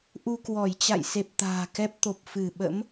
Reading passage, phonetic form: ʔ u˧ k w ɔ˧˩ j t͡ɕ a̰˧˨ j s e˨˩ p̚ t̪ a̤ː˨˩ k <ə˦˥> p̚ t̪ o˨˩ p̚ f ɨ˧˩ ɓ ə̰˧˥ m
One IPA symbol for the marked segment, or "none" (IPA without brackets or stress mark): ɛ˦˥